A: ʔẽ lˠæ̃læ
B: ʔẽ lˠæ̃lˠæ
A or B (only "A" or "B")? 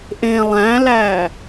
A